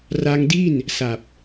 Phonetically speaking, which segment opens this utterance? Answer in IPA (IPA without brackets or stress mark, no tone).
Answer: r